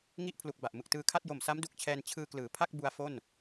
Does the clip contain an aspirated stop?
yes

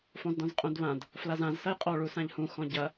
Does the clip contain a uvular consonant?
yes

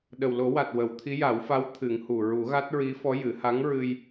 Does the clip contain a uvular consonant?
no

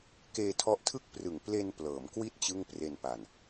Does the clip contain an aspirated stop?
yes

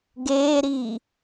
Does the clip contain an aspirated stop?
no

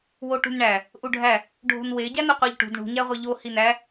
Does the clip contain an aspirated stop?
no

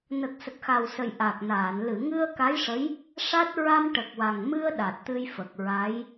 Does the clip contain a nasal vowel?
no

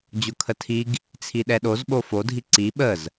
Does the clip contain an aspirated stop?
yes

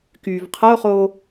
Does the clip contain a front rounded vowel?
yes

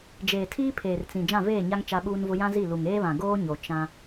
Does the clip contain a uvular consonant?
no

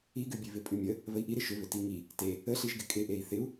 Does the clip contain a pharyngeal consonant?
no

